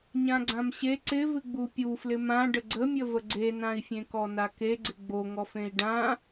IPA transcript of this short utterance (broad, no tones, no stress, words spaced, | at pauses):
ɲãɡ͡ǀãmɕe ǀɪvɨ ɡ͡bupʲuflɪ mãɖə ɡ͡ǀəmʲəvə ɡ͡ǀenãi̯fʲẽ kɔnake ɡ͡ǀɪɡ͡boŋɔfẽi̯ ɖã